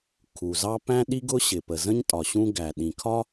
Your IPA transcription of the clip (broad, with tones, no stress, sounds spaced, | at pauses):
kʰ u˩ z ɑ˥ p æ̃˥ ɗ i˥ ɡ ʊ˥ ɕ ɪ˩ p ə˩ z ə̃˥ ɲ tʼ ɒ˩ ɕ ũ˥ ɡ æ˩ ɗ ĩ˩ kʰ ɒ˥